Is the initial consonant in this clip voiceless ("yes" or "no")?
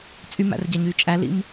yes